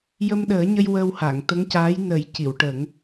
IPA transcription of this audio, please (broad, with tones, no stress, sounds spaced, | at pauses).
j ə˧ m ɗ əː˨˩˦ ɲ ə˧ j w ə˧ w h a˨˩˨ ŋ t̪ ə˧˥ ŋ c aː˧˥ j n ə˨˩˦ j c i˨˩˨ w ʈ ə˨˩˦ ŋ